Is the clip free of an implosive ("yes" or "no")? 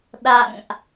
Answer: no